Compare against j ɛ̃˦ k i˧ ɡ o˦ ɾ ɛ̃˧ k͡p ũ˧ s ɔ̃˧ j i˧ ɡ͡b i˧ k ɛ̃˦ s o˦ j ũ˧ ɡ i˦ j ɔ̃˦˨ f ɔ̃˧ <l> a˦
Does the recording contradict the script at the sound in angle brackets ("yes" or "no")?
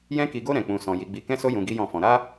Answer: yes